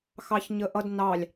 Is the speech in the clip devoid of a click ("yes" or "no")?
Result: yes